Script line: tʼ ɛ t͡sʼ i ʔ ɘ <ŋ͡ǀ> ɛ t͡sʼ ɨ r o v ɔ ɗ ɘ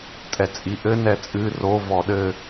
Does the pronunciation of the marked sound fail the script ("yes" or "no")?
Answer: yes